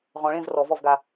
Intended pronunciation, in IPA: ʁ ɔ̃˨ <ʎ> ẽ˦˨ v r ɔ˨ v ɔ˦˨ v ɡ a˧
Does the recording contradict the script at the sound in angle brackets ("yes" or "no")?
yes